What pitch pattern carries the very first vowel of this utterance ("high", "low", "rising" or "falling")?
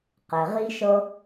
low